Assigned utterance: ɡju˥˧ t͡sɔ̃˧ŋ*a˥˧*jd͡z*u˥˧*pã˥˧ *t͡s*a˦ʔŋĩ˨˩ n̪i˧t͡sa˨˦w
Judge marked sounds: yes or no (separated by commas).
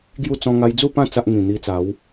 no, yes, yes